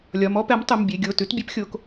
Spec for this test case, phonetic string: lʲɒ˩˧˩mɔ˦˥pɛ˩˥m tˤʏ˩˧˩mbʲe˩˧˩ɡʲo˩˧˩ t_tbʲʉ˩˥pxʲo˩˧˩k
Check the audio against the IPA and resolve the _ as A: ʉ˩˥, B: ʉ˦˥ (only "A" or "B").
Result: A